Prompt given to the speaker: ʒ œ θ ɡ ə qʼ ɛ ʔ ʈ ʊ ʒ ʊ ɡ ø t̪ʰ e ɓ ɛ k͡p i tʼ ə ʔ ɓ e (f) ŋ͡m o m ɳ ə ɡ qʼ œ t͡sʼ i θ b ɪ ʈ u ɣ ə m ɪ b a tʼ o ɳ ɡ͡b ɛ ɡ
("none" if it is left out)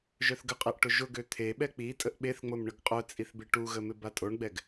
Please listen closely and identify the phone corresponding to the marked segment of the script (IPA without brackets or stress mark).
θ